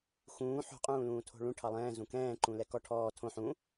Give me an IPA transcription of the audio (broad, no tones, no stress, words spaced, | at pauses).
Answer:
xũː ħo̤ qʼũːlũːtʰo̤ɭũ ʈʰɑlˠɛ̃ː zũkɛ̃ː ǃũlɛkɔ ʈʰɔː tʰõ ħũ